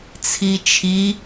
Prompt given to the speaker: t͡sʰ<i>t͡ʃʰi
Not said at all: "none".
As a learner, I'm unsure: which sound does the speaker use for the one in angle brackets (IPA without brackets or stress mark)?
i